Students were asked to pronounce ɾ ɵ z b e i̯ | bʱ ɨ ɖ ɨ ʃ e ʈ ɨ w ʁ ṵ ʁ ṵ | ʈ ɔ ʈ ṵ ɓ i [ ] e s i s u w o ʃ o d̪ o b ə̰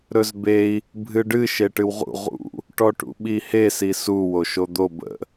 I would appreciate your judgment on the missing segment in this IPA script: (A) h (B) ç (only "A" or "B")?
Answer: A